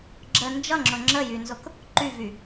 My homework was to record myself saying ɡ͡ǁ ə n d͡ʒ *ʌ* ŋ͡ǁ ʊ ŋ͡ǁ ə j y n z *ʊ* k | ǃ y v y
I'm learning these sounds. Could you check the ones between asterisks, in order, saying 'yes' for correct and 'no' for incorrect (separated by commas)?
yes, yes